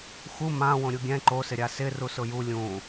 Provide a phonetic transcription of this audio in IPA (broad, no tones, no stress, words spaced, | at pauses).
xu mã wõɾʲuɡʲɛ̃ ǃosɪɾʲa sɪru sʊju lʲũ